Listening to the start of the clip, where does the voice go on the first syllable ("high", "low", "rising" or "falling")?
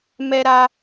high